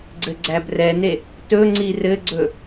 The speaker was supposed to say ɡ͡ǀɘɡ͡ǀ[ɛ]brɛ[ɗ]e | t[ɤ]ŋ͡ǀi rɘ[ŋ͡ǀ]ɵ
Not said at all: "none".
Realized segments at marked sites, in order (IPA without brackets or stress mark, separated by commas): æ, n, ɵ, ɡ͡ǀ